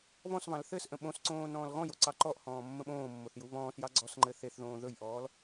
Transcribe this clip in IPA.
β ɔ̃ s β ɑ̃ l θ ɘ s ʔ ə̃ ɓ õ s ǀ õː n ɔ̃ː l ɣ ɔ̃ j o ǀ ɑ ǃ ɔ ʔ h ɔ̃ː mː ə̃ ɓ õː mː o θ j u β ɔ̃ː s j ɑ ɡ͡ǀ ɔ s ŋ͡ǃ ɘ θ e θ ð õː ð ɵ j ʔ ɔː l

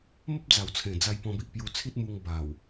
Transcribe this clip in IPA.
m ə˦ p̚ d͡z a˨˩ w t͡sʰ ẽ˨˩ d͡z a˧ j p ɔ̃˧ b i˨ ʔ p j u˧ t͡sʰ i˦ t̚ m u˧ ŋ b a˨˩ w

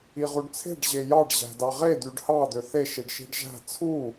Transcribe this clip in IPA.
i ʁ u ɖ t͡sʰ e̤ ɖ ʑ e j ɑ ɖ ʑ æ̤ d ɑ ʁ e d̪ y ɖ h ɑ d̪ ø θ e ʃ i ɖ ʃ i̤ ɖ ʒ æ̤ t͡sʰ u

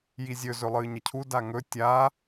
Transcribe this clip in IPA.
j i zʲ ɵ z ɵ lˠ ɨː ɲ ɐ cʰ u d a ŋ ɵ tʲ a

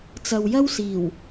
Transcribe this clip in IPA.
t͡s ɐ˨ w j ɐ˥ w s iː˨˩ w

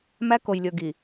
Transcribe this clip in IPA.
m æ˦ k o˨ j lʲ ɵ˨ ɡ i˨

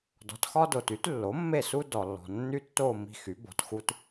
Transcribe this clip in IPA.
d ɔ̤˩˥ t x ɒ˦ d o˩ t y˩˥ t lː o˩˥ mː e˦˨ s u˦ d ɔ˩ lː ɔ̤˩ nː y˦ tː o˦˨ m i̤˦˨ x y˩˥ b ɔ̤˩˧ t x u˦ t

